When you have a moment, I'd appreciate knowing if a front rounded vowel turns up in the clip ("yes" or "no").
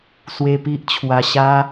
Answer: no